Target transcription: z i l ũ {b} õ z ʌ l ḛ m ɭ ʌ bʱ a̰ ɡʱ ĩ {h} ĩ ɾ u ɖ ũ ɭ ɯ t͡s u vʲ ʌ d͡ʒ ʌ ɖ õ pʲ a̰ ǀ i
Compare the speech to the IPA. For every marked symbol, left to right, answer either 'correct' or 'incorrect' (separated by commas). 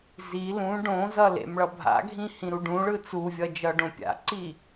incorrect, correct